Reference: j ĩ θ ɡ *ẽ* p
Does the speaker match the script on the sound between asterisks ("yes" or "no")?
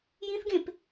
yes